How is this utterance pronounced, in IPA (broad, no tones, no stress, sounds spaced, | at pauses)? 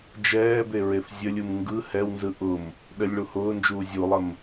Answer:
d͡ʒ ɛː b e ɹ e f zʲ ə lʲ u m ŋ ɡ ɯ h ɛ w n z ɯ ʔ ʊ m | ɗ ə lʲ ɭ u h ʊː n d͡ʒ uː zʲ u lˠ ə m